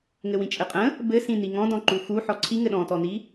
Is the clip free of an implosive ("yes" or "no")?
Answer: no